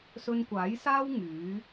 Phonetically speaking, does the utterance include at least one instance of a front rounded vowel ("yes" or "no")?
yes